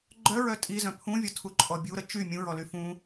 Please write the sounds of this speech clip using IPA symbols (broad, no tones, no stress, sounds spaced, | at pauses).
ɡ͡ǃ œ ɹ œ tʼ i z œ̃ pʰ ũ vʲ ɔ tʰ u ǃʼ ɔ bʲ u ɾ ə t͡ʃ y mʲ ũ ɹ ɔ l y f ũ